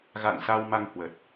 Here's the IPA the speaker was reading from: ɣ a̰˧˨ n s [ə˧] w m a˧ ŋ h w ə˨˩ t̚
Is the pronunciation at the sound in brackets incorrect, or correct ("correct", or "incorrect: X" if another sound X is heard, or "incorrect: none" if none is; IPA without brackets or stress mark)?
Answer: incorrect: a˧